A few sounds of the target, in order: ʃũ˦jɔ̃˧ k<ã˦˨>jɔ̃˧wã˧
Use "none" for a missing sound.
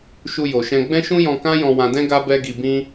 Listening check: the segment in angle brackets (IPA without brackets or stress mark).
ã˦